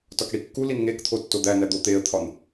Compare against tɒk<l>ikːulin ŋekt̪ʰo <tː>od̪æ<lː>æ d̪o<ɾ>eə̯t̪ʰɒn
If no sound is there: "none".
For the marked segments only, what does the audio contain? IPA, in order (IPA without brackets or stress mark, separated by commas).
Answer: ɽ, tː, n, t̪